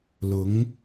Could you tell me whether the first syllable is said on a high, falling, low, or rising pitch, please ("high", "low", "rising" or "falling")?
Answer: rising